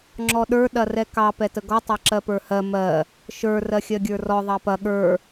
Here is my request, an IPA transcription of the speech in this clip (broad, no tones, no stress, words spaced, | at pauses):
ŋ͡ǁɔɗə˞ ɗɐrɛkɑ pɛtəɡɔ tˤɑǁɜpə˞hɜ mɜ | ʃə˞ rɜxʲɜɡʲə˞rɔ ðˤɑpɐ ɠə˞